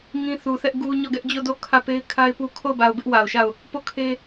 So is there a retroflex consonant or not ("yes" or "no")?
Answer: no